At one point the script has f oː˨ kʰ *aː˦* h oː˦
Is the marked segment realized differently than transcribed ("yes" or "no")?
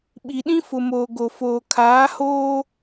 yes